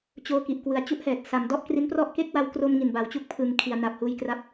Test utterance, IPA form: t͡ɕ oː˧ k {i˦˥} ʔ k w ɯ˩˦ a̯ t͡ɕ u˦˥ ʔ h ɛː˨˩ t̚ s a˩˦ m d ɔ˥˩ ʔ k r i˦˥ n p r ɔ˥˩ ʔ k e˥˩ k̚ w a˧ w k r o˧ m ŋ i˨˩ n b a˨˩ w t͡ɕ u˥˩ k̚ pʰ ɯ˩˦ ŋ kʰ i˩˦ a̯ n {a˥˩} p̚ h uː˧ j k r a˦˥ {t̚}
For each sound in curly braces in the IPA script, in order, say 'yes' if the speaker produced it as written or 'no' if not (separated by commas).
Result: no, no, no